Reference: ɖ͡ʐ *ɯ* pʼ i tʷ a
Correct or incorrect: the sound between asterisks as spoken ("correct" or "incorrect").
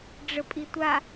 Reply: incorrect